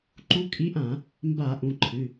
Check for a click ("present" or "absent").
present